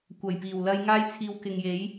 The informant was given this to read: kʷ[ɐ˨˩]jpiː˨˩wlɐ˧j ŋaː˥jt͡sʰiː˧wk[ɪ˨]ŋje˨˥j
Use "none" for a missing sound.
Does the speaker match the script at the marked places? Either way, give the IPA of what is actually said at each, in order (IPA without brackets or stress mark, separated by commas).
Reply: ɐ˨˩, ɪ˨